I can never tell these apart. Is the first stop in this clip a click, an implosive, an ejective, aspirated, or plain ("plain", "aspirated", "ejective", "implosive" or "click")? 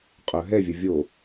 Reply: ejective